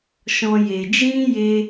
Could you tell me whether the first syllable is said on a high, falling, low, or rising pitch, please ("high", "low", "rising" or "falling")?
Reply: high